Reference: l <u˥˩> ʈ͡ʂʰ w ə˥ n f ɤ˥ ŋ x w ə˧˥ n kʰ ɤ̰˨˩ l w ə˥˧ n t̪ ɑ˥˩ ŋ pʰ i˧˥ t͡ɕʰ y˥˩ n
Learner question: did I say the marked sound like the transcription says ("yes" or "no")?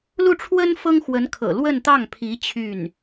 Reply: yes